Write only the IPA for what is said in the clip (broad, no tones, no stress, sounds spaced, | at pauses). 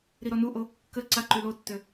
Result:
ɾ i ɾ ɔ n u ʔ o | k ə ǀ a ǃ y l o tː ø